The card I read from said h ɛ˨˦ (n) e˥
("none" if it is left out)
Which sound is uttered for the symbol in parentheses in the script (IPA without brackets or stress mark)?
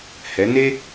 n